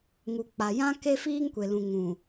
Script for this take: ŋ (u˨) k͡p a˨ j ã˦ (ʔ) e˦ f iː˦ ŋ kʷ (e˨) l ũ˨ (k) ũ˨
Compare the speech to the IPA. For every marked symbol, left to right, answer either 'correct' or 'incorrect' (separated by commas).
correct, incorrect, correct, incorrect